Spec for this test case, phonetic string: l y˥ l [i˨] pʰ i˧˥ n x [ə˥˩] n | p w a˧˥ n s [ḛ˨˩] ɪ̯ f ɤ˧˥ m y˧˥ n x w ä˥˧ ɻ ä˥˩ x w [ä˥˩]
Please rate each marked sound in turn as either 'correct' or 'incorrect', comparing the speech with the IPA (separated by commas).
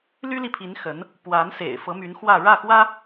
correct, incorrect, correct, incorrect